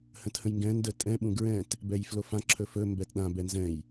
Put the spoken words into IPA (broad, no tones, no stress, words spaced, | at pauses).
hə̃thə̃jŋɡɛ̃ ndətʼɛ̃ ɓũɡɹɛ̃t | bɛjflofã ǁʰɵfɵ mbɛtɗã bɛnzɛ̃j